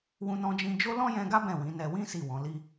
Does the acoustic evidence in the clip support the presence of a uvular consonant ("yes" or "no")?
no